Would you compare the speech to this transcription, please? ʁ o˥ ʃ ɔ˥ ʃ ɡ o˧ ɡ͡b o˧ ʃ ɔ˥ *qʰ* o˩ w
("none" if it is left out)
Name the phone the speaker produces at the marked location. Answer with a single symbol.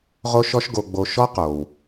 q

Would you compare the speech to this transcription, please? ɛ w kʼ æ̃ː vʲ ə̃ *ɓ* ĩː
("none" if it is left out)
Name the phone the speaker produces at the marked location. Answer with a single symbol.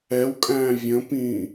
p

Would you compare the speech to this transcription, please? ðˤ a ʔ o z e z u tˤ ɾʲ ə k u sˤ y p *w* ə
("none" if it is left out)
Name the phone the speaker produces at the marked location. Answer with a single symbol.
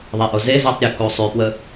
w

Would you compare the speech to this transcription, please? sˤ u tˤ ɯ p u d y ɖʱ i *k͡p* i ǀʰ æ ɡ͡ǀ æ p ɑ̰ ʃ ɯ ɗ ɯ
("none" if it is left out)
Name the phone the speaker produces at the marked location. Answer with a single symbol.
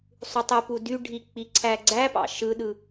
k͡p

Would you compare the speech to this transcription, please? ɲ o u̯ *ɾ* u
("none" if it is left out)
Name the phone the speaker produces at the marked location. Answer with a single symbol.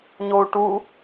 ʈ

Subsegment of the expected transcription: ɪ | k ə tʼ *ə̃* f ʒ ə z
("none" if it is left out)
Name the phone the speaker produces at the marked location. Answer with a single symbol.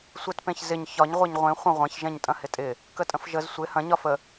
ə̃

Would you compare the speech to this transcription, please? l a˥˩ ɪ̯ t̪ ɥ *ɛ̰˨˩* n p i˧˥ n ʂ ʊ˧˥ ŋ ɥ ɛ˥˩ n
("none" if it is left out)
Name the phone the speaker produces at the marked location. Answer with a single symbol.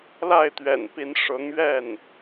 ɛ̰˨˩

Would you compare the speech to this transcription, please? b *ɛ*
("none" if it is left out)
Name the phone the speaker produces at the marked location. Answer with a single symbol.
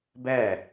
ɛ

